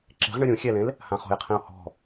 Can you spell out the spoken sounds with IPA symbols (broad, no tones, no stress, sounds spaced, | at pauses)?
ǁ e̤ ʁ ɳ ɯ ɾʲ ũ xʲ ɛ l ẽ l | h ã χ ɔ̤ j qʰ ĩ ʊ̯ h ɔ̤